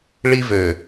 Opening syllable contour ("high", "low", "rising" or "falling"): high